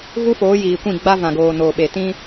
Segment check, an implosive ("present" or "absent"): present